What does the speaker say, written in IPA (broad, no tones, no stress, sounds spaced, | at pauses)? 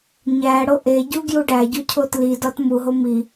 ɲ æ ɽ o ʔ e ɟ u ɡ j u ɖ æ ɟ u cʰ o t l i d ɒ t m u ɦ o m i